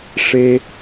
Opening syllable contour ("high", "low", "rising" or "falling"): low